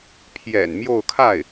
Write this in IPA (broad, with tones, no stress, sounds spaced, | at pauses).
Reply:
pʰ j ɛ̰˨˩ n m j o˥˧ ʊ̯ kʰ a˥˩ ɪ̯